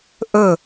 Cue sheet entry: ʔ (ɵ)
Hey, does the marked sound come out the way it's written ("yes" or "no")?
yes